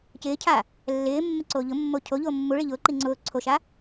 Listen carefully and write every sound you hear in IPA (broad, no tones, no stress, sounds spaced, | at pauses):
c ɪː cʰ a | lː ɪː mː ɪ ǀ oː ʎ ʊ mː o cʰ o ʎ oː mː u ɭ i ʎ ʊː ǃ i ŋ͡ǀ ʊː ǀʰ o ʃ a